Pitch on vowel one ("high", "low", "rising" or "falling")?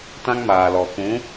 high